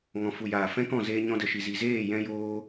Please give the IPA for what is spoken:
ŋ ɔ̃˨ f u˨ j aː˨ f ɛ̃˦ k ɔ̃˦˨ z eː˧ ɲ ɔ̃˧ d ə˨ ʃ i˨ z i˨ z eː˦˨ j ɛ̃˧ j oː˧

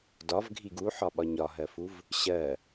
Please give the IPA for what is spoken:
d ɒ v ɡʱ i ɡ u ħ ɒ ɓ ɒ ɲ ɒ ɦ ɜ f u v | ɕ ɜ

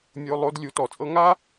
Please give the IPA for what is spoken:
mʲ o˧˥˧ lˠ o˧˥˧ d lʲ u˨˥ t ɔ˩˧ t͡sʼ ɤ˥ ŋ a˥

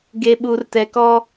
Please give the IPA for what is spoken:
ɡ e˦ ɓ u˦ r t ɛ˦ k ɔ˦

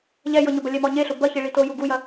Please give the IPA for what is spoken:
ʎ ɛ j ɤ ɲ ʊ b ɐ lʲ ɛ m ɔ ɲ e ɬ ʊ b ɐ ç i ɭ i t o j u ɡ u j ɐ

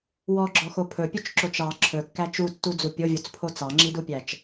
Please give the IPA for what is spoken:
w ɔ ɡ͡ǁ ɔ x o pʰ ɵ pʲ ɵ t͡ʃ ǁ o t͡ʃ ɑ ǁʰ ɵ kː æ t͡ʃ u tː u d͡z u pʲ o vʲ o t͡s pʰ o t͡s ɑ ŋ͡ǁ i d u pʲ æ t͡ʃ

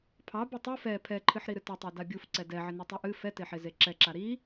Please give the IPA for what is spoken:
pʰ ɑ b ɨ tˤ ɨ f ɛ pʰ ɛ ǃʰ ɨ ħ ɾ i ɾ ɨ t ɪ tˤ e d a bʲ u f ǀ ɛ d ɛ ʕ ɪ n e tˤ u ʔ ɨ f ɛ t e ħ e z e ǁ ɛ ǁ a ɾ i

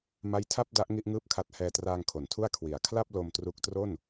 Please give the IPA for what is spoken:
m a˦˥ j tʰ a˥˩ p̚ d a˦˥ ʔ ŋ i˥˩ ʔ ŋ ɯː˥˩ p̚ kʰ a˦˥ t̚ h ɛː˧ t r aː˧ ŋ kʰ o˩˦ n tʰ u˥˩ a̯ kʰ w i˩˦ a̯ kʰ l a˥˩ p̚ l o˧ m t r u˦˥ k̚ t r o˥˩ n

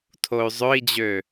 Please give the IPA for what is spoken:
tʰ o y̯ zˤ ø i̯ d͡ʑ ø

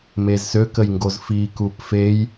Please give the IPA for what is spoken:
m e z s ø k ə j ŋ ɡ o z f i k u p f e j

